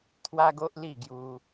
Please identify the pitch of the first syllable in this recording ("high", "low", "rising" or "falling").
high